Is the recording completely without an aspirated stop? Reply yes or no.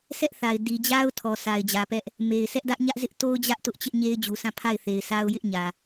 no